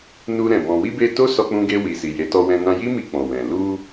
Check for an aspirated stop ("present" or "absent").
absent